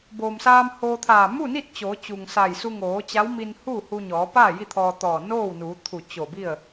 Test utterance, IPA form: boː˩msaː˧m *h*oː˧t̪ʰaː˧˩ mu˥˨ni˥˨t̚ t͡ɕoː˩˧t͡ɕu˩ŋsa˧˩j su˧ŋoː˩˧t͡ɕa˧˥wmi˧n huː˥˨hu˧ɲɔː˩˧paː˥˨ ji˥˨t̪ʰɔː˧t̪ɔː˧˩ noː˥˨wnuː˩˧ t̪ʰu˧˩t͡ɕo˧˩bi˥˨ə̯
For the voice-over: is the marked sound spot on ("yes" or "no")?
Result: yes